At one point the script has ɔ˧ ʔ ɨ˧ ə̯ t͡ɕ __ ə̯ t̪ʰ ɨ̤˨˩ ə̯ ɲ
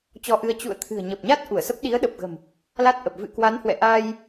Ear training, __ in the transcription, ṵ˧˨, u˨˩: ṵ˧˨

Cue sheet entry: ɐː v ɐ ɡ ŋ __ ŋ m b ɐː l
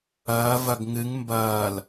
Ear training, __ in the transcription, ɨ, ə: ɨ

